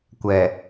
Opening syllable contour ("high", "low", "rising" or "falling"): low